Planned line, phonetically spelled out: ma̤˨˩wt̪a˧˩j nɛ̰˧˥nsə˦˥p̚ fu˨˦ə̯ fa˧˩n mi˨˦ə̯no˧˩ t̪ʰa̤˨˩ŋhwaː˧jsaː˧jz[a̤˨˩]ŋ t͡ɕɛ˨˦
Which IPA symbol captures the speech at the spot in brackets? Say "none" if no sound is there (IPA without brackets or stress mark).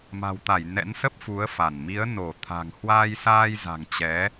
a̤˨˩